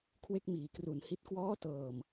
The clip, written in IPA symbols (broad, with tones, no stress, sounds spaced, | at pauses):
kʰ w e˥˩ k̚ m iː˨˩ k r u˨˩ n h i˦˥ t̚ k w ɔː˦˥ t ɤː˨˩ m